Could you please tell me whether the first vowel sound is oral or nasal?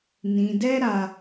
nasal